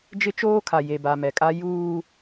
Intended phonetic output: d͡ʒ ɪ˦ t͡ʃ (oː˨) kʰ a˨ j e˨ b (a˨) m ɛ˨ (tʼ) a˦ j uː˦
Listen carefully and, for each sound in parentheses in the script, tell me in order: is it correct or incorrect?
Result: incorrect: oː˦, correct, incorrect: kʼ

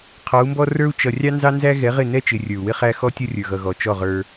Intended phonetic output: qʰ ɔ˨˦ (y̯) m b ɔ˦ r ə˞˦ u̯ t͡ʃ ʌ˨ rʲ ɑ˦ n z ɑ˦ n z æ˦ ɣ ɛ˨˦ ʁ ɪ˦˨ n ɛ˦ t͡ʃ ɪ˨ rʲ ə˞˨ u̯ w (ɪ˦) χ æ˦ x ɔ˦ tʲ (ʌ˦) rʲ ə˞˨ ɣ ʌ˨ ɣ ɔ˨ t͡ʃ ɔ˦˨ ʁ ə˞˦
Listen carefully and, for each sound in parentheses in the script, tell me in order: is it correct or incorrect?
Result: incorrect: u̯, correct, correct

